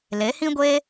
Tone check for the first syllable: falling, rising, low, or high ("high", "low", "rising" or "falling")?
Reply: rising